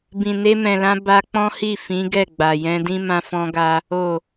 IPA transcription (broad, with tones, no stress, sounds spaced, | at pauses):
b ĩ˨ n e˧ m ɛ̃˨ l ã˧ b a˧ k͡p ɔ̃˦ h i˦˨ f ĩ˨˦ ɡ ɛ˦˨ ɡ͡b a˨ j ɛ̃˧ d ĩ˦ m ã˧ f ɔ̃˧ ɡ a˧ | o˨